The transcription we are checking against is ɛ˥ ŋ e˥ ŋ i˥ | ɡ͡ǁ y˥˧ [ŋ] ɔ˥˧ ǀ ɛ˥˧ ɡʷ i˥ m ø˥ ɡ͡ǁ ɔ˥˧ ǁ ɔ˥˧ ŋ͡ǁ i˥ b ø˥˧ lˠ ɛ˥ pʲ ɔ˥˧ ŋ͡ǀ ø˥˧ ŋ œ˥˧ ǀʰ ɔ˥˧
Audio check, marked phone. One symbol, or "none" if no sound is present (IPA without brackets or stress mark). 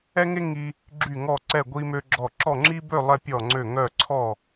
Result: ŋ